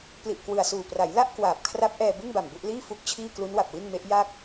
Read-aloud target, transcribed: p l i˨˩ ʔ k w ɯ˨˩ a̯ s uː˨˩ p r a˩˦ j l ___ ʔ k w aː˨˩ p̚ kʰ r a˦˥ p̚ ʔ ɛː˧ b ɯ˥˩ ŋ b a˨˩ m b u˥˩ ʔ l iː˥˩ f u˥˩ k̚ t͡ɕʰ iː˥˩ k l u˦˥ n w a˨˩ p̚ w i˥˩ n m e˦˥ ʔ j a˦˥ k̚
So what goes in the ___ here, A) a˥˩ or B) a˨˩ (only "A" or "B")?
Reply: A